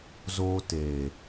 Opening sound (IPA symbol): z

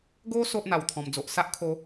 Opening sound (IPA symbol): ɡ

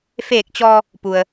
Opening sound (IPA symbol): f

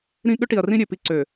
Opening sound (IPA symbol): ɾ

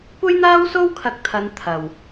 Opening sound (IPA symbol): kʷ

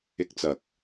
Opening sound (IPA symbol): ɪ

